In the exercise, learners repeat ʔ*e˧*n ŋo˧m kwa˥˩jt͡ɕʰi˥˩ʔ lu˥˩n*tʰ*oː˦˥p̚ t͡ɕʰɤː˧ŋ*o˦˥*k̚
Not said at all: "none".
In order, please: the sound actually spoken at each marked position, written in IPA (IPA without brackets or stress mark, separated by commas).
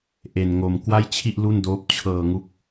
e˧, d, u˦˥